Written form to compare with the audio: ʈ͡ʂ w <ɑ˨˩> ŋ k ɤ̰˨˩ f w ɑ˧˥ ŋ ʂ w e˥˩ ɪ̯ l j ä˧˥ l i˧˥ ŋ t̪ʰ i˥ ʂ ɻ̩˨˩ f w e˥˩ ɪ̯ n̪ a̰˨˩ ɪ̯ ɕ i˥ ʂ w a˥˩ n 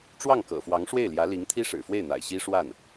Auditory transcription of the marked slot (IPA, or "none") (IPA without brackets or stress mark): ɑ˥˩